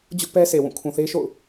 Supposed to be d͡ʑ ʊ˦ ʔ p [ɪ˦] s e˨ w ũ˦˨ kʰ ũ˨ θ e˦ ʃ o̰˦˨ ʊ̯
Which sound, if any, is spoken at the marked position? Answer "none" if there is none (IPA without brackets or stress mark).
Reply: ɛ˦